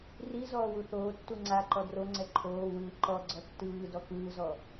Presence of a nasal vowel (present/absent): absent